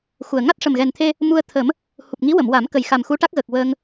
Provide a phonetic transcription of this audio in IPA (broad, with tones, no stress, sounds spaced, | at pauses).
x u˨˩ ə̯ ŋ a˦˥ t̚ ʂ ə˨˩ m ɣ ɛ˨˩ n t̪ʰ e˧ | m u˧ ə̯ t̪ʰ ə˨˩˦ m | h u˨˩ p̚ ŋ i˧˥ w ə˨˩˨ m w a˨˩˦ m k ə˨˩ j x a˨˩ m x u˧˥ ʈ a˦˥ k̚ ɣ əː˨˩ k̚ w əː˧ ŋ